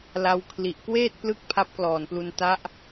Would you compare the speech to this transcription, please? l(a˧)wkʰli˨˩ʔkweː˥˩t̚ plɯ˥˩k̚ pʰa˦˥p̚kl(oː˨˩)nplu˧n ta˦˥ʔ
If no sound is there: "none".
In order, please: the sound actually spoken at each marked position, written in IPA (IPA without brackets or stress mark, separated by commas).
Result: a˧, ɔː˨˩